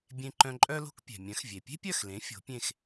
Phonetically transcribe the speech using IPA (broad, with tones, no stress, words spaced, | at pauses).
bʲẽ˧ǃœ̃˧ǃʼœ˥lo̤˥k pʲɛ̤˩mʲœ̃˩˥xvʲe˩ pʲe̤˥pʲœ˥˩xlẽ˩˥ fʲo̤˩˥pʲẽ˥˩x